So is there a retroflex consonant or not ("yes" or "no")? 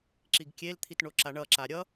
yes